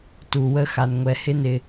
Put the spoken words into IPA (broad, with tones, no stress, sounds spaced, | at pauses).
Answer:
t u˨ w ə˦ x a˨ n ŋʷ ɛ˨ h ɪ˦ n ɪ˨